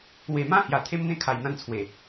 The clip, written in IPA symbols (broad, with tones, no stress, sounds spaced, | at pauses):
w e˨˩ m ã˥˧ h j a˨˩ t̪ʰ e˦ m n̪ ẽ˥˧ kʰ a˨˩ j n̪ ã˥˧ n t͡sʰ w e˨˩